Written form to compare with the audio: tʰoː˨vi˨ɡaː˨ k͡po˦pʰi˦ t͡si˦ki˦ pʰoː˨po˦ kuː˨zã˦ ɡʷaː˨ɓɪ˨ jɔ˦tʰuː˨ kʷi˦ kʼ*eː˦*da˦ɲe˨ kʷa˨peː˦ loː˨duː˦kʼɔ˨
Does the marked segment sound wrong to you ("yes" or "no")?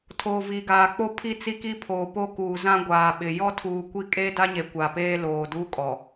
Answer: no